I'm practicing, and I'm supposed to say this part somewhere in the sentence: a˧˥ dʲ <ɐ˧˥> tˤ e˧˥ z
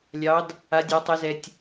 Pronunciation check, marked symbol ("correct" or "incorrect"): incorrect